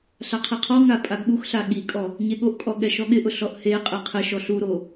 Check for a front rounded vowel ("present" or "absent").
absent